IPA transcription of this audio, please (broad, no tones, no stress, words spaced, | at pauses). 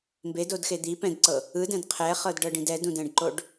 mbedodxe d̪i pɛ̃dǀɤ | ɯdɛ̃d qʰɛχɤdɖɤɖĩd ɛdũdɛ̃ɖǃoɖ